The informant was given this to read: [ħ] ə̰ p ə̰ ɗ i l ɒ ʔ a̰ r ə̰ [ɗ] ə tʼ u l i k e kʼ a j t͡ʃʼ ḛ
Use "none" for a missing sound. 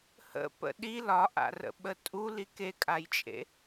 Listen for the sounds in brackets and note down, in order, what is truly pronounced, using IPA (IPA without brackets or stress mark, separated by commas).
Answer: h, ɓ